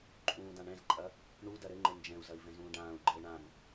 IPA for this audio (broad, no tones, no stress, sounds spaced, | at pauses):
ǃʼ ũː d ã ɳ ɛ̃ z ǃʼ ɐ | ɳ u d ɐ ɾ ɘ ŋ͡ǃ ɘ n d͡ʒ ɛ̃ u̯ z ɐ i̯ v ɛ̃ z ũː ɖ ãː u̯ ɡ͡ǃ ɘː ɳ ã m